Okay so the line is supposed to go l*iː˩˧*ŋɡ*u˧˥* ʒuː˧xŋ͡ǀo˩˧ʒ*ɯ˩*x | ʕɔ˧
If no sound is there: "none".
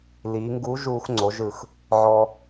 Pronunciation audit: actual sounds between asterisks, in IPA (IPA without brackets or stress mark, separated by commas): iː˩˧, u˧˥, ɯ˩